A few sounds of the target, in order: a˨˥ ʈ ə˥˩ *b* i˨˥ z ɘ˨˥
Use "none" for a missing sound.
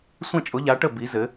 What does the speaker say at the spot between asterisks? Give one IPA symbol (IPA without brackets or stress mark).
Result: b